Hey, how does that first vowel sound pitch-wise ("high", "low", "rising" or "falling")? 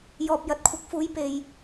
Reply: low